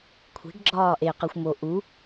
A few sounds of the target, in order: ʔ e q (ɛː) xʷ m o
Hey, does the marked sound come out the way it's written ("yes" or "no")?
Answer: no